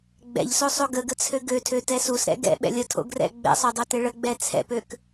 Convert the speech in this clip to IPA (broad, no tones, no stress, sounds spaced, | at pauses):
ɡ͡b ɛ̰ ʎ s o sˤ o ɡ ə ɡ ə t͡sʰ ø ɡ ø tʰ ø t ɛ s u s ɾ ɛ̰ ɡ ɛ̰ ɓ ɛ̰ lʲ ə tʰ o̰ ɡ r ɛ̰ ɡ͡b ɛ̰ sˤ o dˤ o t ɪ ɭ ə ɡ͡b ɛ t͡sʰ ɛ̰ p ø k